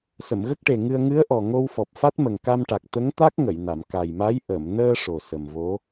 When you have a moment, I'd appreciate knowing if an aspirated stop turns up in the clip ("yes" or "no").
no